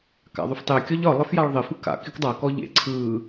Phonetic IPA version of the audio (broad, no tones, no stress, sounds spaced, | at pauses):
k a̰ ðˤ y f tˤ e kʲ ɒ ʎ ɒ lˠ ɪ f j a ɭ ðˤ ɪ f ɯ k a̰ k ɪ k dˤ a k ɔ ʎ ḛ ǀʰ ɯ